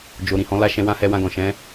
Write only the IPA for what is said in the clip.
d͡ʒ o˨ ɾ ĩ˨ h ɔ̃˨˦ l a˦ ʃ ɛ̃˧ w ã˦ h ɛ˧ w ã˧ ɡ ɔ̃˨ ʃ ɛ̃˨˦

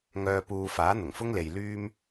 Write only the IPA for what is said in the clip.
ŋ œː˨ p uː˨ f aː˨˥ n̪ ʊ˨˩ ŋ f ʊ˥ ŋ l e˨ j l yː˥ m

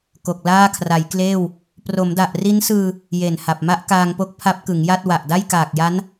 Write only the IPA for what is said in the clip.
k o˨˩ k̚ l aː˥˩ kʰ r a˩˦ j k l eː˥˩ w | p r o˩˦ m d a˨˩ ʔ r i˦˥ n s ɯː˧ | j e˨˩ n h a˨˩ p̚ m a˦˥ ʔ k aː˧ ŋ p o˦˥ k̚ pʰ a˦˥ p̚ k ɯ˩˦ ŋ j a˥˩ t̚ w a˨˩ ʔ d a˥˩ j k aː˨˩ k̚ j a˦˥ n

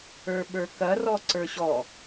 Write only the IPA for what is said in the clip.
ə˞ ɓ ə˞ k ɐ r ɔ ǀ ə˞ ɕ ɔ

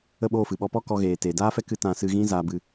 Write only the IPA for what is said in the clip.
ə˦˨ ɓ oː˦˨ f ɨ˨ ɓ ɔ˧ p ɔ˦ k ɔ˧ ɣ eː˨ t eː˨ d aː˦ f ɛ˦ k ɨ˧ t ã˧ s ɨ˧ ɣ ĩ˦ z aː˧ b ɨ˧

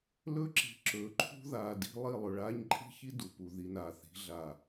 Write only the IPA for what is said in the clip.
l ɵ˦ ǁ i̤˨ ǁ ɵː˨ ǃʰ ṳ˦ ð aː˨ d i̤˦ lˠ i˦˨ lˠ ɵ˨ ɭ aː˦ ɲ ǃʼ i̤˦ ç i˦ d u˨ p u˨ ð i˨ n aː˨ θ i̤˨˦ ɮ a˨

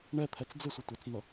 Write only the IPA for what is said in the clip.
ɳ ɛ t̪ʰ ɛ t͡s d͡z ɪ sʷ ʌ tʷ ɪ t͡s n ʌ

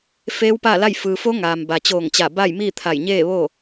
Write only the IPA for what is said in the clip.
f eː˧˥ w p a˥˨ l a˥˨ j f ɯː˩ f o˧˥ ŋ aː˩ m b a˩ t͡ɕ oː˧˩ ŋ t͡ɕ a˧˩ b a˥˨ j m iː˥˨ t̪ʰ a˧˩ j ɲ eː˥˨ ʋ oː˥˨

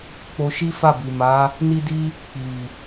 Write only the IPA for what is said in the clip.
k͡p o˧ ʃ i˦ f a˦˨ b i˨ m a˨˦ | n i˦ d i˦ | k͡p i˨

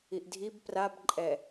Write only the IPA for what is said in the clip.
i ʔ dʱ i b p r a b ǃʼ ɛ

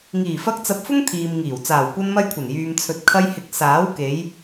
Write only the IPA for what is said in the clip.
ŋ iː˨˩ f ɐ˧ k̚ t͡s ɐ˧ p̚ f ʊ˥ ŋ t̪ʰ iː˨ m ŋ iː˨˩ w t͡s aː˨˩ w kʷ ɐ˧ n m ɐ˧ j kʷʰ ɐ˨˩ n j yː˨ m t͡sʰ ɵ˨ t̚ kʰ ɐ˧ j h ɪ˨˥ k̚ s aː˨˥ w k e˨˧ j

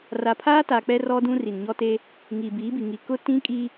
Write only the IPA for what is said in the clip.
r a˨ pʰ aː˦ t a˨ k͡p ɛ˦ r ɔ˦ d ũ˦ r i˨ n ɲ ɔ˦ t e˦ | ŋ iː˨ b iː˨˦ b i˨ ŋ i˨ k ʊ˦ t ĩ˦ kʼ i˦

